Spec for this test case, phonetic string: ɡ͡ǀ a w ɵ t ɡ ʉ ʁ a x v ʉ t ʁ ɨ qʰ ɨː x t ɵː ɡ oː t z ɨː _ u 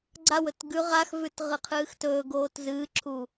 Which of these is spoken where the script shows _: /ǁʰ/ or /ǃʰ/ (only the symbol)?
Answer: ǁʰ